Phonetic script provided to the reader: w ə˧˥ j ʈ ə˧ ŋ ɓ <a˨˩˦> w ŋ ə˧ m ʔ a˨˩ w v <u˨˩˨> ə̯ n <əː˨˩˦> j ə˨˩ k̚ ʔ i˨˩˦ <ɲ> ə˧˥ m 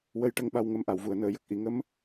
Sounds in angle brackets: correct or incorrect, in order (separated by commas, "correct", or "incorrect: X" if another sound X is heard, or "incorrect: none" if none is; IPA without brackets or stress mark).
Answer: incorrect: a˧, correct, incorrect: əː˨˩˨, incorrect: ŋ